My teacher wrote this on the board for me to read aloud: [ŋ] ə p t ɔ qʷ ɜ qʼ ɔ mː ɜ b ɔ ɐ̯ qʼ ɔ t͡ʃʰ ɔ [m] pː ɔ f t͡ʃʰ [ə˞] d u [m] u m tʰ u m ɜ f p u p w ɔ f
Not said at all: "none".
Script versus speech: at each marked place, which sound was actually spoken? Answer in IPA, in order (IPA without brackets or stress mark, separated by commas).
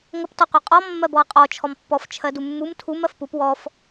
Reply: ŋ, m, ɜ, mː